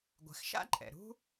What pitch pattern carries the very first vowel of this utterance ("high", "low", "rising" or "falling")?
low